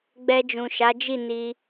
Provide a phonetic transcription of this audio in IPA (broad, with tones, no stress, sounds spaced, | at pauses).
ɡ͡b ɛ˧ d͡ʒ ũ˨ ʃ a˨˦ d͡ʒ i˦˨ n i˧